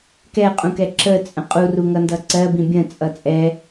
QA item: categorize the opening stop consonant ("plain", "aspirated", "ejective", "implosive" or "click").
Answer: plain